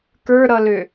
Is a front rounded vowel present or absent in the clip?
present